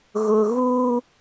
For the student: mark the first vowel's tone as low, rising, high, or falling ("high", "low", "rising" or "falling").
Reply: low